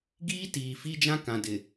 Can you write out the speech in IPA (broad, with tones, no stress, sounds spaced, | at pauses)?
ɡ iː˦ t iː˨ f i˦ d͡ʒ ã˦ k ã˨ d ɪ˨